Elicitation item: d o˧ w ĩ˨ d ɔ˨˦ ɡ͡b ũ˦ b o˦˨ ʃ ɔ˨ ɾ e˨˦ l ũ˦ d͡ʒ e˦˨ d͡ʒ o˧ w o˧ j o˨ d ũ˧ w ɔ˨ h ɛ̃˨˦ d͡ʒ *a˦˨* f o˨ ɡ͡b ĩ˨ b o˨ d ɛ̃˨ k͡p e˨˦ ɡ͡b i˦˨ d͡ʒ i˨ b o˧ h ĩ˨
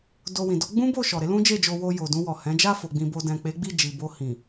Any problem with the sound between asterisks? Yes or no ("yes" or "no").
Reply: no